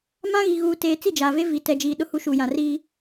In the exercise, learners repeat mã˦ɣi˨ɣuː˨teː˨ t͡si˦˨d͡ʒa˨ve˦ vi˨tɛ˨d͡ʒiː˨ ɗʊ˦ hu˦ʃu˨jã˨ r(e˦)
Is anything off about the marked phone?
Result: yes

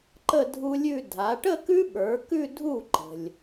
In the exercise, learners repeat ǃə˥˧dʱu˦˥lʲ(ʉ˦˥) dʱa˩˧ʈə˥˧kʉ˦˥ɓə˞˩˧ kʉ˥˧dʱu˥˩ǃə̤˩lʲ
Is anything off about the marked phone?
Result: yes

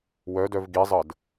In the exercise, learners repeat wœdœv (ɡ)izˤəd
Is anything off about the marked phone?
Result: no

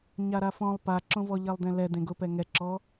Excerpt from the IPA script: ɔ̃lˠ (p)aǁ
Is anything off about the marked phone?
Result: no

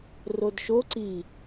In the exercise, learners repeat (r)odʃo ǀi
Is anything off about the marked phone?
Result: no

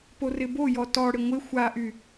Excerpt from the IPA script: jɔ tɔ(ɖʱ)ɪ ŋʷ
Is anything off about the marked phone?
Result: yes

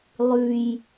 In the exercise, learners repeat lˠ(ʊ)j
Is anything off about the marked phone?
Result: yes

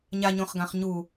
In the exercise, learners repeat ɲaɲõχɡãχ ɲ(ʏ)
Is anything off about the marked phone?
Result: yes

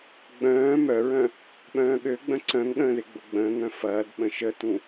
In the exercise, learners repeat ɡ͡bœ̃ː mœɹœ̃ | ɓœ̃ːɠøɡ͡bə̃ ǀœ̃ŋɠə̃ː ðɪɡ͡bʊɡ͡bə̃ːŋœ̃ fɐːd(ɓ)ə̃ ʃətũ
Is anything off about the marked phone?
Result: no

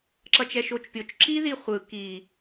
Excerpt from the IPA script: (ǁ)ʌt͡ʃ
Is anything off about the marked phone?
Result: no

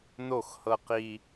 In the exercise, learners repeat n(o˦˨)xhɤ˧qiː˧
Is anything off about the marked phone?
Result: no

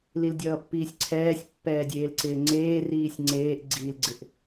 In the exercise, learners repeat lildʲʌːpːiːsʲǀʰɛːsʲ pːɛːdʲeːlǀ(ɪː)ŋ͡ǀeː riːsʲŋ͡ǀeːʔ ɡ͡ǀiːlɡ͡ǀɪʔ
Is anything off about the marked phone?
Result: no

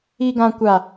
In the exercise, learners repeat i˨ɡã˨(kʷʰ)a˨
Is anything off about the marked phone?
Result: yes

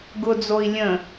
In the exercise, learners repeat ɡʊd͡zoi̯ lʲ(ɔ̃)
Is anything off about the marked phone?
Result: yes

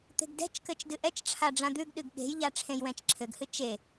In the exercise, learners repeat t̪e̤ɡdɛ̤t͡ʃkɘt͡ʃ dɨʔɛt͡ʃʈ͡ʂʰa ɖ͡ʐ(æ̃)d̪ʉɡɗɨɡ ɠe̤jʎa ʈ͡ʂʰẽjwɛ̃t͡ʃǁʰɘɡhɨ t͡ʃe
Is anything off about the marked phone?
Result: yes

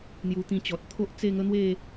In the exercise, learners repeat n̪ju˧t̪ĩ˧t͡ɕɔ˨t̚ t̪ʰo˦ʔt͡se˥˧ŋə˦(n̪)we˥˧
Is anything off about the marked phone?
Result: no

